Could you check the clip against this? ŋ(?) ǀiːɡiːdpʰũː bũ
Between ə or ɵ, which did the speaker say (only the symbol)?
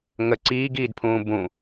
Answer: ə